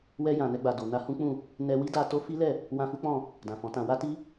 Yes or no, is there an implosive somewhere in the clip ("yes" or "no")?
no